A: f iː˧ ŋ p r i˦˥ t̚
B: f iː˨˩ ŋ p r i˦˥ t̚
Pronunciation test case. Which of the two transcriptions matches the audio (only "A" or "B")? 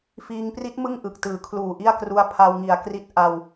A